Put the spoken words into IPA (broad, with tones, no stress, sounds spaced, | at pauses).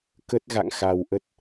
k ə˦˥ t̚ ɣ a̰˧˨ ŋ x a˨˩ w ʔ ə˦˥ t̚